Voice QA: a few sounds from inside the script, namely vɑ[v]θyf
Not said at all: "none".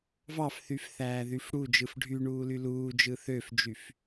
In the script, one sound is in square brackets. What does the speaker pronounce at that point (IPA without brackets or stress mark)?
f